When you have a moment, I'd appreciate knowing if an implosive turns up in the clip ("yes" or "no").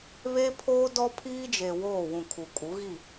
no